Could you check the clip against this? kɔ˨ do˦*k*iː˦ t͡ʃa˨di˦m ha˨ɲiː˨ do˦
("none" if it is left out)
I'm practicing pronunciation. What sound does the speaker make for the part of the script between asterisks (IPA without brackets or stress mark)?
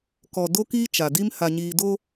k